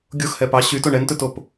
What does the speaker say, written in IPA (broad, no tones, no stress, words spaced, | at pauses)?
ɡʲoxhɛ pɑ ɕytoɳ ɛntɵtop